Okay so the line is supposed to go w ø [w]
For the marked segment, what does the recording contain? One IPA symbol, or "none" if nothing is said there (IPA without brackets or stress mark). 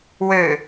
none